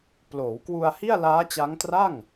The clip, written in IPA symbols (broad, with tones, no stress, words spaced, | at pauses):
ploː˩˦wkwu˧a̯ hi˥˩a̯laː˦˥t͡ɕa˦˥ŋ tra˥˩ŋ